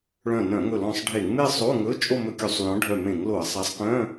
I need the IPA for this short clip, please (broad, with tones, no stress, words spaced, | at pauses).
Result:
ɭœ̃˧˩nœ̃˧˩˧ŋɵ˧˩lɔ̃˧˩sˤ ɖʱe˧˩˧ŋme˥˧ sˤo˧˥˧ŋɵ˧˥˧t͡ʃʼo˥˧ mɵ˧˥˧kʲu˧˩˧sˤlɔ̃˨˥ ɖʱœ˧˩ mẽ˧˩˧ŋlo˧˩˧ɐ̯sˤæ˨˥sˤ kœ̃˧˥˧